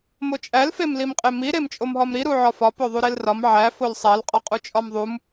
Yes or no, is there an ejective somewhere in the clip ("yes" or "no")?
yes